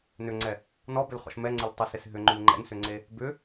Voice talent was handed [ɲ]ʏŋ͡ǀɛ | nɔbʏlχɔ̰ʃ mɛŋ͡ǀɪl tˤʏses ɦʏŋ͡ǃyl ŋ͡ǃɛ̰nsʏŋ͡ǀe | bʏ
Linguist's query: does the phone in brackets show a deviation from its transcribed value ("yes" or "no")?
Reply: yes